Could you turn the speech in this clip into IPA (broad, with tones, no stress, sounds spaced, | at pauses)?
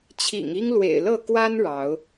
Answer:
t͡ɕʰ ḭ˨˩ ŋ i˦ ŋ l w ḛ˨˩ ɪ̯ l ɤ˥˨ k w a˦ n ɻ ɑ˨˦ ʊ̯